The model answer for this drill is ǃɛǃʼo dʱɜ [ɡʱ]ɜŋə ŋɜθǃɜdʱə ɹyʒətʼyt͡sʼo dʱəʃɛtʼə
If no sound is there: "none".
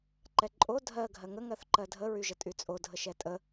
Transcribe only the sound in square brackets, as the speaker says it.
ɡʱ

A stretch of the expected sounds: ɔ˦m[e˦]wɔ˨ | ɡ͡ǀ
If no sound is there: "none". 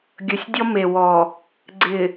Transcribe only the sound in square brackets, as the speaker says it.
e˨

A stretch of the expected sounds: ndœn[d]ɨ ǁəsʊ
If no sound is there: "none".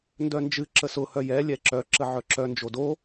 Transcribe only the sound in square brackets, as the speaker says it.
d͡ʒ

